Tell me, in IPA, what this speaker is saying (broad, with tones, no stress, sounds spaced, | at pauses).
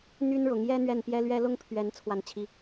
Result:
n̪ y˥ n ɻ ʊ˧˥ ŋ j ɛ˥ n̪ ɥ ɛ˥˩ n p j ɛ˥ l ɥ ɛ˥ l ʊ˥˩ ŋ pʰ ɥ ɛ˧˥ n t͡sʰ w a˥˩ n t͡ɕʰ i˥